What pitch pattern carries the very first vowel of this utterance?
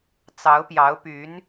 rising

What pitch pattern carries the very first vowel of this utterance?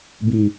low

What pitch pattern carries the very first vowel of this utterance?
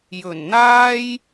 low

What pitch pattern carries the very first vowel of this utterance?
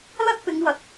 high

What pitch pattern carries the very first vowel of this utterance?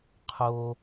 low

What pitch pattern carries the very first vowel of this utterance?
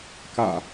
low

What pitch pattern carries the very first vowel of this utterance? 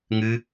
high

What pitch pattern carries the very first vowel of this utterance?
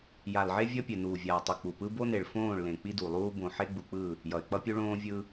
low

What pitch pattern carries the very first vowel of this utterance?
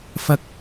high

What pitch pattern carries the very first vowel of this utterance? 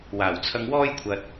low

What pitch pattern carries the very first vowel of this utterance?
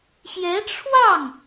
rising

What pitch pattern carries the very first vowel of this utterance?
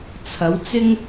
rising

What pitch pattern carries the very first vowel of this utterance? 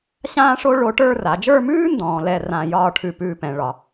high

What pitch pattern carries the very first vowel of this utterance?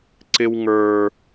low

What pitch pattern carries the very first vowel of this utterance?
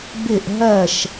falling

